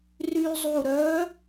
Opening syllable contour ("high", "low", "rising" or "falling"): high